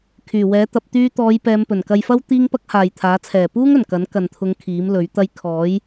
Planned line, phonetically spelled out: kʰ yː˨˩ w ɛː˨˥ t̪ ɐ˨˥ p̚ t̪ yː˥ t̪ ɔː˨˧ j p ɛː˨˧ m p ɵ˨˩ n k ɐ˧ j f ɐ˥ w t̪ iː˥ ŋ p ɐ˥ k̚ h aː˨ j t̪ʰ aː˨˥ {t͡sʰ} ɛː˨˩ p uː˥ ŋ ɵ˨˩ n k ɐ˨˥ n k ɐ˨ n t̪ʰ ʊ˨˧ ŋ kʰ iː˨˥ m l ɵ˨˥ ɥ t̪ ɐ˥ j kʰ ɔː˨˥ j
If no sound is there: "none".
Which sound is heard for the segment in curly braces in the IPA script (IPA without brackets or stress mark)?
t͡sʰ